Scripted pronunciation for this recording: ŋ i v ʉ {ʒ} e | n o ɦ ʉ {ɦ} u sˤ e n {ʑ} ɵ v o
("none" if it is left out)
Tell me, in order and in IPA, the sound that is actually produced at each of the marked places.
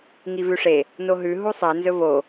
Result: ʂ, ɦ, z

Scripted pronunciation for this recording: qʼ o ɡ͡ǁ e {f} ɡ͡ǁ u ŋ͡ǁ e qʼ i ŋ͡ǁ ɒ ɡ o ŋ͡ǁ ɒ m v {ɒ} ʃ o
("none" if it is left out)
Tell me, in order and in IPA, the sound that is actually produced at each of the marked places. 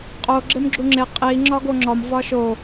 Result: m, ɒ

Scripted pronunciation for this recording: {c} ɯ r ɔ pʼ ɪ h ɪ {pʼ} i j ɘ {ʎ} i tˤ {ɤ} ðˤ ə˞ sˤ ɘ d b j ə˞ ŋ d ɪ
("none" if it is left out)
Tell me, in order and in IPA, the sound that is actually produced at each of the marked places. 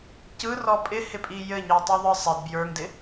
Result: c, pʼ, ɲ, ɯ

